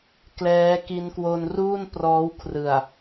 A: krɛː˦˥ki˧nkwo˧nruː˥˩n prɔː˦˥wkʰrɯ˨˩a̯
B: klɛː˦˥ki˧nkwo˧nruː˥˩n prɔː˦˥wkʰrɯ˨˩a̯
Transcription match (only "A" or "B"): B